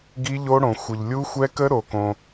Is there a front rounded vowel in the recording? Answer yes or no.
no